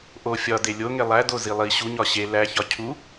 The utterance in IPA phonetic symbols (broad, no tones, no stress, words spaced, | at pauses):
ʔo fʲɒ delʲo ŋelˠæ dozilˠi ɕu ɲɒɕe læ çɒcʰu